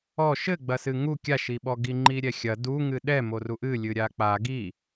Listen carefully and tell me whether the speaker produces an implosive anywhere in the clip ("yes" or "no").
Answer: yes